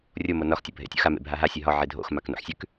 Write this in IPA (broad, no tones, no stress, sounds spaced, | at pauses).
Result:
rʲ o m o n ɒ x tʲ ɒ bʱ ḛ tʲ o̰ x a m ḛ bʱ a ɦ a sʲ e ɦ ɒ ʕ e dʱ o̰ x m a k n o̰ ħ sʲ ʉ k